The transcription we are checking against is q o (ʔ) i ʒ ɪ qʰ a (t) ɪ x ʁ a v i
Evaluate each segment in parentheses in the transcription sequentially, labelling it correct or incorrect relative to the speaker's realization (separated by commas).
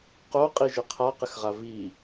incorrect, incorrect